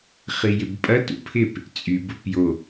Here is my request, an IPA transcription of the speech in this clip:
χijɪbpʼɐ tṵpʰɪp | t͡sʼyb ʊpjo

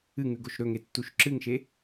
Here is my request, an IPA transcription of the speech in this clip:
ɨŋʉɡoʃ ɾɵŋetːuʃ ǁɨŋʃe

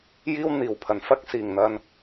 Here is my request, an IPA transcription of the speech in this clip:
jiː˥wn̪iː˨˩wpʰɐ˨n fɐ˥k̚siː˨˩ŋn̪ɐ˧n

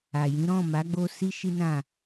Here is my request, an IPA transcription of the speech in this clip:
a˨jĩ˨˦ ɾɔ̃˦˨ma˨˦ ɡ͡bo˧ si˦ʃi˦nã˦˨

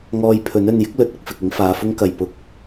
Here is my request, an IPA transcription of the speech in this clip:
ŋɔː˧jpʰɵ˨˥n ɵ˨njɪ˥k̚lɵ˨˥t̚ ʊ˧k̚fɪ˨k̚ɪ˨˥ŋfaː˨˧ fʊ˥ŋkɐ˨j pʊ˧k̚

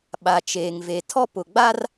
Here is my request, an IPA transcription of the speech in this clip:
ɓa˨t͡ʃeː˨ŋve˨ tʰɔ˦pʊ˨ɡ͡ba˦r

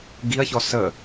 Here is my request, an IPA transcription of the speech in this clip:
ɡiɐ̯çɔ sə

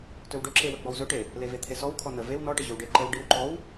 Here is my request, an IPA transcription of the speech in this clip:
tɵwɖɵǁewə ɡ͡bɔwzɵʈe | levet̪ʰesɔw kʰɔnə vew nɔʈə ʑɵwɖe ǃəw ɖiwǃɔw

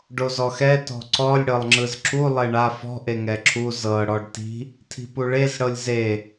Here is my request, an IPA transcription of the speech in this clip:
ɖozɔxɛ tɔ̤ǀɔlʲ ɽɤlˠŋ͡ǁɯzǁu lˠeɳa fɔ̤ ʔeŋɛǁʰu zɤ ɽɔɖti̤ | tʰi̤puɭez ɽɤlʲze

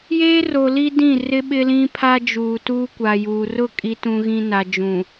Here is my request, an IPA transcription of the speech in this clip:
jeː˦ro˨ li˦dĩ˦˨rɪ˦ ɓɪ˦lĩ˦pʰa˦ d͡ʒuː˨tuː˦kʷa˨juː˨ rʊ˦˨kʼi˨tũ˨ɣĩ˨ na˨d͡ʒũ˨

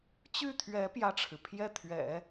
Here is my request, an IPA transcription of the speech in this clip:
t͡ɕy˥˩t̪ʰɥɛ˧˥ pjä˥˩ʈ͡ʂʰɻ̩˩ pʰjɛ˥˩t̪ʰɥɛ̰˨˩˦

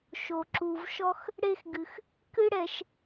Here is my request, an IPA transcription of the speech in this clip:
ʃo˧ǁu˧vʃɔ˥x | ɽe˥xɡɨ˧x | kɨ˥ɽɛ˧ʃ

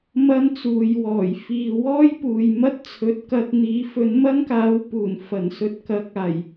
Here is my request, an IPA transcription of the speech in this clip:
mɐ˥nt͡suː˨˧jwɔː˨˩j fiː˨ wɔː˥jpuː˨jmɐ˥t̚t͡sʰɵ˨˥t̚ kɐ˧t̚n̪iː˨˥ fɵ˨˥nmɐ˥nkaː˨˥w puː˨˩n fɐ˨˩n sɵ˧t̚kɐ˨˥k̚aː˨˩j

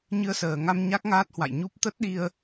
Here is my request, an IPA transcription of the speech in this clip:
ɲɨ˧ə̯səː˨˩ŋa˧m ɲa˦˥k̚ŋaː˦˥t̚hwa̰˧˨jɲu˦˥p̚ t̪ə˦˥t̚ɗi˧ə̯

